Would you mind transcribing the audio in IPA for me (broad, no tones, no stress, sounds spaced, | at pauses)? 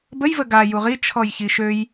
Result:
b ə j v ə ɡ a j u ʁ i t͡ʃʰ ɔ j ç i ʃ ø j